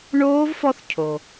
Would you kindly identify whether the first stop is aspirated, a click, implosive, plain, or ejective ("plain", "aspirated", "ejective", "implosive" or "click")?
aspirated